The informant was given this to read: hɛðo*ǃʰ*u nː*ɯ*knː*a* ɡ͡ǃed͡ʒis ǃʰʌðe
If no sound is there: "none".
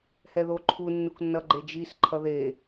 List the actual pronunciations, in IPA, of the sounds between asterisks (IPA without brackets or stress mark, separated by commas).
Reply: ǃʰ, u, ʌ